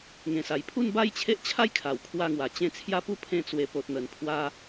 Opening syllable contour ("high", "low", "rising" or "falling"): low